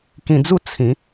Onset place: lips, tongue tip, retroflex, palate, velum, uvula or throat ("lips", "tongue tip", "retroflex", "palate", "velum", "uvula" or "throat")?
velum